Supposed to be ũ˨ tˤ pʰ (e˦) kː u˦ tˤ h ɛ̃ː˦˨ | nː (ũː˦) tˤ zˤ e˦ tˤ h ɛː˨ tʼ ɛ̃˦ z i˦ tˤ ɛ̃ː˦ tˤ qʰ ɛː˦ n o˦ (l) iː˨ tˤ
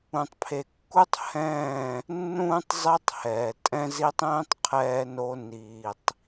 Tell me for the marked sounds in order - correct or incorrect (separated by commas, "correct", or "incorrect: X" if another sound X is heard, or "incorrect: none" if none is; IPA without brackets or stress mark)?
incorrect: e˨, correct, incorrect: n